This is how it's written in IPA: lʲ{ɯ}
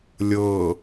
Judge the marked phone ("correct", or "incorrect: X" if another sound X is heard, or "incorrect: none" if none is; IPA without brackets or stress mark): incorrect: ɤ